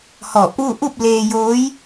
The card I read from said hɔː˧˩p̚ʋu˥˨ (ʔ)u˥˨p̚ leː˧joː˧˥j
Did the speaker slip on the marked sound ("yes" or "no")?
no